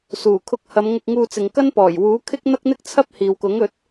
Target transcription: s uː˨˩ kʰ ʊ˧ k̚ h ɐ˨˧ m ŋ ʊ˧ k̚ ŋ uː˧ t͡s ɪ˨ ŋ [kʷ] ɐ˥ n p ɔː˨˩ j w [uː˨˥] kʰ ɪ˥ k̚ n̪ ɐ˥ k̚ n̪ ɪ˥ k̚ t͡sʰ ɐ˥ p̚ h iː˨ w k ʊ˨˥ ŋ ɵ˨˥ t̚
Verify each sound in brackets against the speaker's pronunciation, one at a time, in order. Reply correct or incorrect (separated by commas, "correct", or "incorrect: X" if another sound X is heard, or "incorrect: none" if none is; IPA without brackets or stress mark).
incorrect: k, correct